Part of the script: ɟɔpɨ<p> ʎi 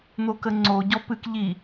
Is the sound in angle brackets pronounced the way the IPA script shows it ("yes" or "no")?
no